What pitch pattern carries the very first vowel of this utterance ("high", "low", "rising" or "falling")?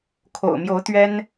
low